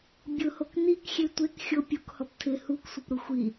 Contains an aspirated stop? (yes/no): yes